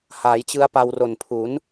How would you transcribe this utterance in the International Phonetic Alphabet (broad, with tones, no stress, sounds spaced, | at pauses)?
h aː˩˦ j t͡ɕ ɯ˦˥ a̯ p a˧ w r o˨˩ n pʰ u˩˦ n